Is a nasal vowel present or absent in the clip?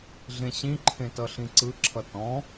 present